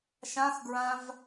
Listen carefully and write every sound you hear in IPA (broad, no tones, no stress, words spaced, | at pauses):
ʃãxɡɹãv